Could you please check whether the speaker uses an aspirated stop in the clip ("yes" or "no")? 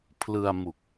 yes